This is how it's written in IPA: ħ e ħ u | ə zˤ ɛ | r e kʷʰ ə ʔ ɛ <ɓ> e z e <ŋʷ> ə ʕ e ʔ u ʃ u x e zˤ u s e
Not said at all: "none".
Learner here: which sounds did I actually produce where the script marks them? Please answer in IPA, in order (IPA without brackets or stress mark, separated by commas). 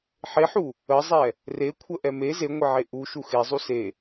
m, ŋʷ